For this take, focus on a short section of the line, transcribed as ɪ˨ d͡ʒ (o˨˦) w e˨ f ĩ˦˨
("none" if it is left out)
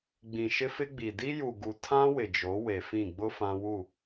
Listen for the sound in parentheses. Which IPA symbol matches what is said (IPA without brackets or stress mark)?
o˨˦